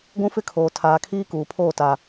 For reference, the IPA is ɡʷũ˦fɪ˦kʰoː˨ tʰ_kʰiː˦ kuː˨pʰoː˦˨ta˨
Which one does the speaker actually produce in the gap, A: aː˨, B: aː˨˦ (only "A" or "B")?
A